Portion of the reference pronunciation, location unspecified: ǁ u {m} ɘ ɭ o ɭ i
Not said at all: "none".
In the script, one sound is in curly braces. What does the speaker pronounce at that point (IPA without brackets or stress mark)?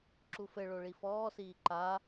f